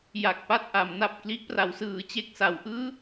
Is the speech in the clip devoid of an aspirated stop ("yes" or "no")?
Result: yes